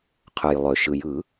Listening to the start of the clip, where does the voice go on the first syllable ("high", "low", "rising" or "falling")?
low